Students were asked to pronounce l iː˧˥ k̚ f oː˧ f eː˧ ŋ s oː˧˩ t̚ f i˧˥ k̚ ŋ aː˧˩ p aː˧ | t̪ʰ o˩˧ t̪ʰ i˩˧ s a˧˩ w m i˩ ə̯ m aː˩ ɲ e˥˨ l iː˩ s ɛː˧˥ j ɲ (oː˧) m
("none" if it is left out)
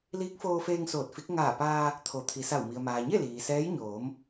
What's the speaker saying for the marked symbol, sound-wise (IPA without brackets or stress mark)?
oː˩˧